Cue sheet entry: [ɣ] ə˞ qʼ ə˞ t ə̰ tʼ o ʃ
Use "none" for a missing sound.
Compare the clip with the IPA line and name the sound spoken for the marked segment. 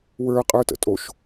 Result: w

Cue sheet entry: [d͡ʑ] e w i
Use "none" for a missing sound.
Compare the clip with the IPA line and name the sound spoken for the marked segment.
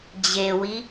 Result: d͡ʑ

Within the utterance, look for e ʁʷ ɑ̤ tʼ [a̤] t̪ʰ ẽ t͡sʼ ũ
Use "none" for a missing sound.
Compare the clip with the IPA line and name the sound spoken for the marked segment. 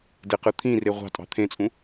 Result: ɑ̤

